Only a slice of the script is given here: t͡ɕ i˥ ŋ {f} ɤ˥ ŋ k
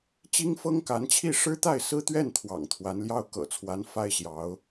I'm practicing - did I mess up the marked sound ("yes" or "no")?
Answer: no